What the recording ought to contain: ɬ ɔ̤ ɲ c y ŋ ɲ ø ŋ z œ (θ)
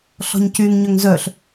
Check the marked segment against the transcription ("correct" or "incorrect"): incorrect